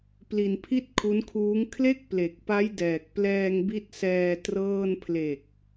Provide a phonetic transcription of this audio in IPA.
pli˧npʰi˥˩t̚kʰu˦˥nkʰuː˦˥ŋ kʰle˥˩k̚ple˨˩k̚ pa˦˥j dɛː˨˩k̚plɛː˧ŋbi˦˥t̚sɛː˧ trɤː˥˩n pʰle˨˩k̚

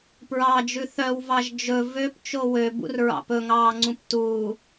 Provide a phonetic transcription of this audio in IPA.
pɹɑd͡ʒʉ θœwvɑʒ d͡ʒɵ vøpt͡ʃo wøbṵrɹɑ̰ pɵŋɑːŋ͡ǀũp tuː

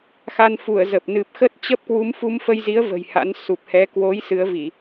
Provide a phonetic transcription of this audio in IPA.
xa˧nfu˧˩ə̯ zə˨˩p̚ nɨ˨˩p̚xə˦˥t̚t͡ɕə˦˥p̚ kwu˨˦mfu˧mfə˧jzi˨˦ə̯ və̤˨˩jha̰˧˥n su˨˩p̚hɛ˨˦ kwo˨˦j sɨ˨˦ə̯vi˧˩˨

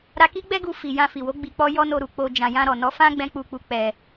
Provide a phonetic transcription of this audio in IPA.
ɾa˧ki˦ɡ͡bɛ˦ɡu˧ fi˨ jã˧fi˨wo˨˦ ɡ͡bi˧k͡pɔ˦ jɔ˦no˧ɾu˨ k͡po˧ d͡ʒã˨jã˧ ɾɔ˨nɔ˨˦fã˦ ɡ͡bɛ̃˦k͡pu˧k͡pu˧ k͡pɛ˧

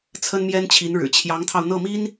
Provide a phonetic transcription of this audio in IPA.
t͡sʰə˥nmjɛ˥nt͡ɕʰi˧˥nɻɻ̩˨˩ t͡ɕʰjɑ˧˥ŋt̪ʰɑ˧ʊ̯n̪ɤ˥˩mi˥n

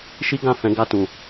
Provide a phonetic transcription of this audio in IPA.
ʃi˦ ɡã˦˨ fɛ̃˨˦ɡa˧tũ˨

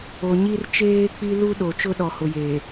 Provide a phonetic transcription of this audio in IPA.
o˨ɲi˦r t͡ʃeː˦k͡pi˦ lu˦ɗo˨ t͡ʃʊ˦ɗɔ˨hʊ˨jeː˨

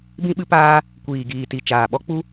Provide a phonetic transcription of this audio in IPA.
bĩ˦ɓɨ˦paː˦ | kʷiː˨ ɡiː˨ti˨t͡ʃaː˨ɓɔ˦ k͡pu˦

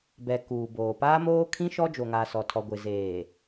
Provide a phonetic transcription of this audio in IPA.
bɛ˨ kuː˨boː˨ paː˦moː˦kʰĩ˦ʃɔ˦ d͡ʒo˨ŋa˨sɔ˨tʰɔ˨ ɡʷɪ˨zeː˨

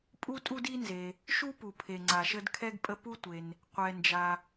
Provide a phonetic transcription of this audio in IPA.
pʼu˥tʼu˥di˥nze˩ | ʃu˥ pu˩pʰe˩ŋ͡ǀa˩ʃə˥d kʰɛ˥ɡpʼə˥ pu˥tʷe˩n | qʷɛ˩nd͡ʒa˩

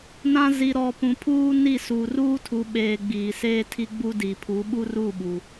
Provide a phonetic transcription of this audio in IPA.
nã˦ zi˨ɾɔ˨ pũ˨ pʰuː˦ni˦˨ suː˨ruː˦tʰu˨ ɓeː˨ ɡ͡biː˨seː˦tʰi˦ɡ͡bu˦ di˨pʰu˨˦ɓu˦ru˦˨ ɓu˨

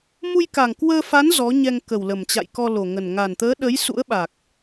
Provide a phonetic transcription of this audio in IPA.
mu˧jka˨˩ŋkwəː˧fa˨˦n zɔ˨˦ɲɛ˧ŋ kə˨˩wlə˨˩mt͡ɕa̰˧˨jkɔ˧ lo˨˩ŋə˨˩n ŋa˨˩nt̪əː˨˦ɗə˨˦j sṵ˧˥ə̯ɓa˨˩k̚

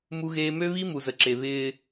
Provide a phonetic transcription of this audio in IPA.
mu˦ɣeː˦ mø˦βi˦ mu˨zə˨ ǁe˨βɪː˦

